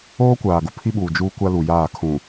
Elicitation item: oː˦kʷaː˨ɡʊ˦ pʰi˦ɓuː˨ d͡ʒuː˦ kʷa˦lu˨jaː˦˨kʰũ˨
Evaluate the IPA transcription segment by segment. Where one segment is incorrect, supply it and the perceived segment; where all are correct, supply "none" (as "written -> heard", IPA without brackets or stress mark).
none